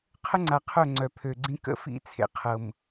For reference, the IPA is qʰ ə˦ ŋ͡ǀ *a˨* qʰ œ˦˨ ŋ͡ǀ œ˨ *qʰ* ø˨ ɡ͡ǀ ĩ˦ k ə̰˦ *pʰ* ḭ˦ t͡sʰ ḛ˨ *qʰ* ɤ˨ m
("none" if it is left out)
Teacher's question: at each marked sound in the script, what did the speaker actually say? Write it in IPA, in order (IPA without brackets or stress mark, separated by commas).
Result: a˨, pʰ, f, qʰ